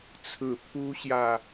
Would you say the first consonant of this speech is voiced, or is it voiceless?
voiceless